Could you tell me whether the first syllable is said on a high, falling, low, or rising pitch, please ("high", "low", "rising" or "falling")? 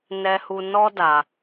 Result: high